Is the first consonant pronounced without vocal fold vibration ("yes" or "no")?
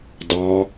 no